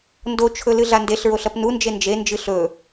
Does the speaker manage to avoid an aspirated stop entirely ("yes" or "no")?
no